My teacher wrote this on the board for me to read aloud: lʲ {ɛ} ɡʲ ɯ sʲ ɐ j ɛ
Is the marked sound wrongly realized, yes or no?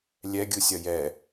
no